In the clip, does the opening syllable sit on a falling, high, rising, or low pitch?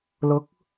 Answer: rising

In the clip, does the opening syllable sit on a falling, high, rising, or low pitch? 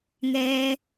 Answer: low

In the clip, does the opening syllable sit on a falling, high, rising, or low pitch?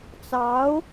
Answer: rising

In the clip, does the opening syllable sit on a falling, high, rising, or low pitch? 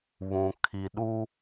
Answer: low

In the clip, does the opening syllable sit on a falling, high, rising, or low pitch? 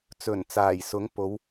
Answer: low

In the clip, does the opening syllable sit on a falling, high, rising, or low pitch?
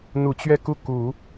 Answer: low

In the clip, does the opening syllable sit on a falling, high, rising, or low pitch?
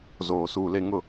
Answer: low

